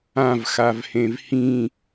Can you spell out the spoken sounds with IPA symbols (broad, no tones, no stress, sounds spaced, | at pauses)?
ã v x a v h ẽ v h ĩ